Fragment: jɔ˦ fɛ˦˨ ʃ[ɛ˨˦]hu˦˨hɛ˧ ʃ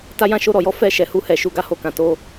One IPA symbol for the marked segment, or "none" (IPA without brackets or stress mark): ɛ˨˦